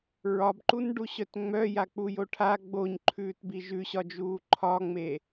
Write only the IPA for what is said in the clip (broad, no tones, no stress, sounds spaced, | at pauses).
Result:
ɹ ɒ b ǃ u n ɖ u ɕ œ t ŋ͡m œ j a k͡p u j o ʈʰ a ɡ͡b o ɲ ǃʰ ʉː t b i ʒ ʉ ɕ ɒ d͡ʒ uː ǃʰ ɒ ŋ͡m e